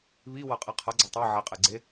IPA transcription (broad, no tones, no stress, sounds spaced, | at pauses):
β i w ʌ qʼ e qʰ ʌ ɡ͡ǀ ʌ tˤ ɛ ʕ ɛ qʼ e ɡ͡ǀ e